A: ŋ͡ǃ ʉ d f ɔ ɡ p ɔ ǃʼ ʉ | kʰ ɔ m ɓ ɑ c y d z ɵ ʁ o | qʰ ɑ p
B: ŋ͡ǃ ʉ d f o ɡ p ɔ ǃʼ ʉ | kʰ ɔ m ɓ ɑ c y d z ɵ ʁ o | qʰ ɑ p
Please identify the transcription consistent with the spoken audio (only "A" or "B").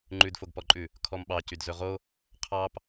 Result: B